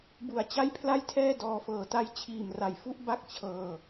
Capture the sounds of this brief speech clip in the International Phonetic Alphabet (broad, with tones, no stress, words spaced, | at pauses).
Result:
bu˨˩a̯ t͡ɕa˥˩jpʰla˥˩jtʰɛː˥˩ dɔː˧fɤː˨˩ta˥˩j t͡ɕʰiː˨˩mra˨˩jfu˥˩ʔba˥˩k̚ t͡ɕʰɤː˧